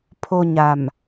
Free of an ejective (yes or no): yes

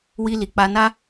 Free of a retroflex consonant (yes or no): yes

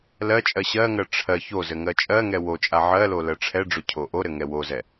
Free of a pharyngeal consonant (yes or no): no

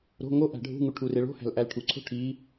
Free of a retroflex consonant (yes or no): no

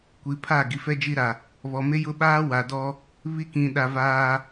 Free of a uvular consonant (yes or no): yes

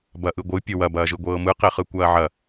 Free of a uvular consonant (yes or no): no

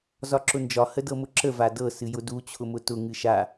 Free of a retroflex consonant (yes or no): yes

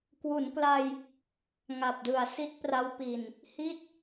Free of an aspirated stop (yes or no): yes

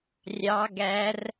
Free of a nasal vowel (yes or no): yes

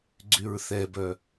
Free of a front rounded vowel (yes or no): no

